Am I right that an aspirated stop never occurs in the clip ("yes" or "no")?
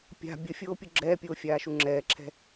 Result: no